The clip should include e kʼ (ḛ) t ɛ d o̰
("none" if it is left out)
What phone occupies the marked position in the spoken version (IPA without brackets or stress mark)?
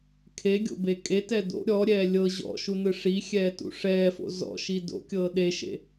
e